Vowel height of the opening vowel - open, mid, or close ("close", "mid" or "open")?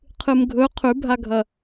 close